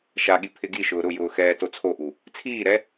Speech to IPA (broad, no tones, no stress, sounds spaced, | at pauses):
ʃ a ɠ i pʰ ɪ ɡ i ʃ ʊː ɾ ʊ j ʊː x ɛː t o t͡sʰ o ʔ u | t͡sʰ iː ɾ ɛ